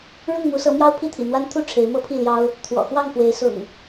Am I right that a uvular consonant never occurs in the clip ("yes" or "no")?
yes